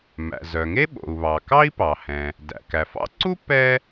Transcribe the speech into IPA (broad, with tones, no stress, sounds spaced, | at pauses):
m æ̰˩ z œ˩ ŋ e˥ ɓ o̰˩ u̯ β ɑ˩ k ɑ˥ i̯ p ɑ˩ h ɛ̃˩ | d æ̰˩ k æ˩ f ɑ̰˥ ǀ u˥ p ɛ˥